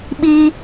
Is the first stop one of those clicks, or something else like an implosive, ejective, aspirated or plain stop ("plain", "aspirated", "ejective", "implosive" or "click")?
implosive